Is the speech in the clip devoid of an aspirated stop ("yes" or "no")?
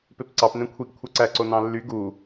no